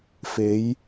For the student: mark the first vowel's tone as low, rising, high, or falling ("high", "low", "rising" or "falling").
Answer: rising